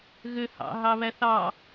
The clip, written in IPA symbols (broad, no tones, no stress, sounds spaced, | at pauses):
ɣ ø h ɑ̰ ɦ ɑ β æ θ ɑ